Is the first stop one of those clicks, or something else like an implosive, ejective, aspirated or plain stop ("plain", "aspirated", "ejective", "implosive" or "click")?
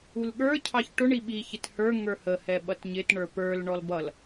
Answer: implosive